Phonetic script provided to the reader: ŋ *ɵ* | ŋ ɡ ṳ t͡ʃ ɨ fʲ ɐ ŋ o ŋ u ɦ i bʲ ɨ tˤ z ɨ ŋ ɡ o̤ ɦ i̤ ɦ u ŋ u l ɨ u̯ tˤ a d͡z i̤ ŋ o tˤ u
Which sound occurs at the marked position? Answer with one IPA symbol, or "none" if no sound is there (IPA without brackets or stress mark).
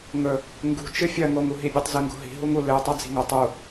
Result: ɵ